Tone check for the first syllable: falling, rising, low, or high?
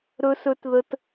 high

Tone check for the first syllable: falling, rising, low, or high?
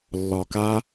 low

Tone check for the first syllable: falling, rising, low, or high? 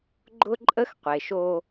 high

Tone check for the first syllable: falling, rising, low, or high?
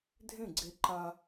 falling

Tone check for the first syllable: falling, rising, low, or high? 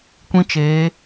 high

